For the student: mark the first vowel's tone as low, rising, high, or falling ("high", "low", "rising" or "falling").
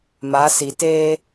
rising